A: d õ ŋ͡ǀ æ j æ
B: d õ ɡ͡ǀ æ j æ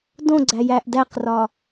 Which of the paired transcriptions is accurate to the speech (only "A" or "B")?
B